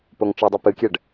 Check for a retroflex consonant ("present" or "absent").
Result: present